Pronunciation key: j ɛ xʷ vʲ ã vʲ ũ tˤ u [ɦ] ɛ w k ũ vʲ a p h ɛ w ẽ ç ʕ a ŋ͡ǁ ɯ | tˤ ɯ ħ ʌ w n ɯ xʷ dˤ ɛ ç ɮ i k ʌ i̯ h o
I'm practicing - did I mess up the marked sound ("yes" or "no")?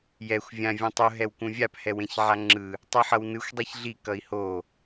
no